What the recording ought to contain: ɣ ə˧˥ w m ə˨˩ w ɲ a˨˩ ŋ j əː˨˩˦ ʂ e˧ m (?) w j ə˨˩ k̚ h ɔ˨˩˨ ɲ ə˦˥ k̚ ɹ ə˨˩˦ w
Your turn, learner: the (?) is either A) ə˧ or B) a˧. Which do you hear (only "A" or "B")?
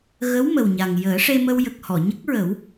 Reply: A